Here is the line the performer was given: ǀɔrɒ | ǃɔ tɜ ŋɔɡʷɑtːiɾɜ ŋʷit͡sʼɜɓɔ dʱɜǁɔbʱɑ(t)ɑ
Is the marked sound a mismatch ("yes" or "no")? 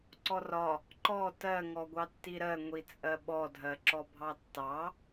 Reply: yes